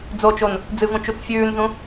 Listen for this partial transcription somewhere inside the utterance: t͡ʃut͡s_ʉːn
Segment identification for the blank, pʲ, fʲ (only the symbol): fʲ